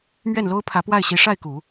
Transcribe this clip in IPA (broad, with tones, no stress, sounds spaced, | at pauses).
m ɥ ɛ˥˩ n l o˥ ʊ̯ pʰ ä˧˥ p w a˥˩ ɪ̯ ɕ i˧˥ ʂ a˥˩ ɪ̯ k u˨˩˦